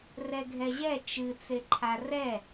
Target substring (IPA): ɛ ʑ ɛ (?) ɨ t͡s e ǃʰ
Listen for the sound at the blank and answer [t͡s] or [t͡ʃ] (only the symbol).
t͡ʃ